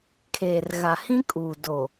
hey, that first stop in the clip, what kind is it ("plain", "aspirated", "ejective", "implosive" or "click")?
aspirated